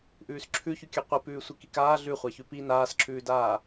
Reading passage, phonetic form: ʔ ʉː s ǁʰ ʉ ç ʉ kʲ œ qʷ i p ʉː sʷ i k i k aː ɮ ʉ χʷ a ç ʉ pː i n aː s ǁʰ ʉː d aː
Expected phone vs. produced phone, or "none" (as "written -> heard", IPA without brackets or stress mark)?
pː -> p